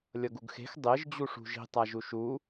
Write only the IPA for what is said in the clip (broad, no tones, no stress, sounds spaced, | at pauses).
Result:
lʲ ʌ ɡ u ɡ x e̤ x dˤ e ʒ d͡ʑ u ʂ ṳ ʒ i̤ tˤ a ʒ u ʃ u